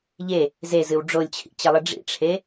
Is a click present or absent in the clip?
absent